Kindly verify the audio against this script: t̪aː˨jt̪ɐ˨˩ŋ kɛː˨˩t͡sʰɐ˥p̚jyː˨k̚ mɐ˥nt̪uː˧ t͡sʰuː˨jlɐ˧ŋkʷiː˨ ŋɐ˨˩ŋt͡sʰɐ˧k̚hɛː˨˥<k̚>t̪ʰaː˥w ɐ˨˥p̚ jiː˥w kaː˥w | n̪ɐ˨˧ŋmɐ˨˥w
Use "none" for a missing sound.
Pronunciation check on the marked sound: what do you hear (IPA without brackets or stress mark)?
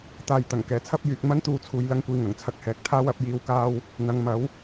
k̚